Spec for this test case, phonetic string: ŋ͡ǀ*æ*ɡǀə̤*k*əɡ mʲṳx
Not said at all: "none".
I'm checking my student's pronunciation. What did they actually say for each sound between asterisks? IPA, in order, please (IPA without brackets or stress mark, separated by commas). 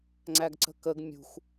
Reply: æ, k